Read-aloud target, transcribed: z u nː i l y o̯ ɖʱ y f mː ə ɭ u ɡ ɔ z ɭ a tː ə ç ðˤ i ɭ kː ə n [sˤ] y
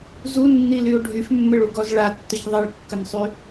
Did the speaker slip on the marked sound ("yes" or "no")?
no